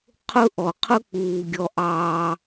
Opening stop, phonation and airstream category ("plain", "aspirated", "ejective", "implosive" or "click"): aspirated